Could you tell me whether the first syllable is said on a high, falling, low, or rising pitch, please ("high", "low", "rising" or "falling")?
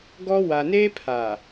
high